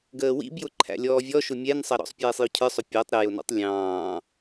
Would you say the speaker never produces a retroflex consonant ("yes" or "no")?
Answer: yes